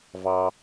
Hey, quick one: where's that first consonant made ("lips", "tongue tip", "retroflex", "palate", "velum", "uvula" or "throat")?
lips